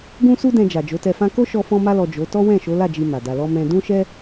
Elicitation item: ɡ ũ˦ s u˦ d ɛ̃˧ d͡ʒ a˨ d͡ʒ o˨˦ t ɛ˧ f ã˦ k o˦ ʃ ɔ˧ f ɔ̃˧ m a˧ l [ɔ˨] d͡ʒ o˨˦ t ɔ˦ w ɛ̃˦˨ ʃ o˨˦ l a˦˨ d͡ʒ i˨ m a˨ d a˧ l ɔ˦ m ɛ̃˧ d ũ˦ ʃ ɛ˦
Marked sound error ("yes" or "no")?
no